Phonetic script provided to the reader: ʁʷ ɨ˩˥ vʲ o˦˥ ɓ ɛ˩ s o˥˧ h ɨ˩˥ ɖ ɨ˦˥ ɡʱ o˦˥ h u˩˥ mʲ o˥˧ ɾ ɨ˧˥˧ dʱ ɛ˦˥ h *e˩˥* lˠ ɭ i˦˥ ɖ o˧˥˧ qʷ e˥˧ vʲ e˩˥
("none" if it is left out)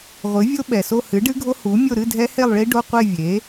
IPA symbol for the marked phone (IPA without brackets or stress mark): e˥˧